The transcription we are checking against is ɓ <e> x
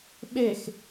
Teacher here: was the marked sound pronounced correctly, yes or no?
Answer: yes